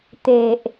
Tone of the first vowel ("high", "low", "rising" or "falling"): low